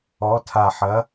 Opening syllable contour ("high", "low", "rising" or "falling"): rising